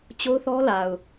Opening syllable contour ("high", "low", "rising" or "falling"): high